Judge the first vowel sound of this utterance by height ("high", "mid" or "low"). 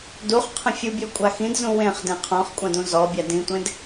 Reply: high